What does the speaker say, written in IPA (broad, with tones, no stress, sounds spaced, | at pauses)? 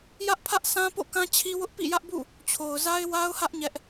j ä˦ ʔ pʰ ä˦ ʔ s ã˦ p o̰˦˨ k ã˦ t͡ɕʰ i˦ w ʊ˦ ʔ p ḭ˦˨ j ä˦ ʔ b ṵ˦˨ | t͡ɕʰ o˨ ʊ̯ z a˦ ɪ̯ w a˦ ʊ̯ h ä˦ ʔ ɲ ɛ˦ ʔ